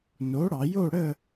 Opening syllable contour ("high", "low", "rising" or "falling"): rising